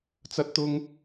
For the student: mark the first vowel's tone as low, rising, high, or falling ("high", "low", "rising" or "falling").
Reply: high